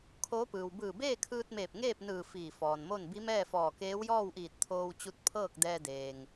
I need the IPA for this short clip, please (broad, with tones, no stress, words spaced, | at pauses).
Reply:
kʰoː˧˥pɯː˩w bɯː˧˩beː˥˨kʰɯː˧t̚meː˧˩p̚ ŋeː˥˨p̚ nɯː˧˩ fiː˧˩fɔː˩nmo˥˨n bi˧˥mɛː˥˨fɔː˧˩ keː˧˥wjɔː˥˨wʔiː˧˩t̚ t̪ʰoː˧wt͡ɕu˧˥t̚pʰɤː˥˨k̚ dɛː˧deː˩ŋ